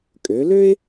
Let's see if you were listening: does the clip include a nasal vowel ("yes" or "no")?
no